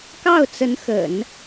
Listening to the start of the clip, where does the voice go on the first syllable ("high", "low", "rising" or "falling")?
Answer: falling